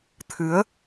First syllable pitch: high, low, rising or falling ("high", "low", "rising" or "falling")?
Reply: rising